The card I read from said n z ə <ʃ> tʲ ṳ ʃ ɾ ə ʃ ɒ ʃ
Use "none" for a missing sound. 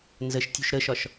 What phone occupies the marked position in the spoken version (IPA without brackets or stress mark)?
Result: ʃ